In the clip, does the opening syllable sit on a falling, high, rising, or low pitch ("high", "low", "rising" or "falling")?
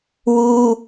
high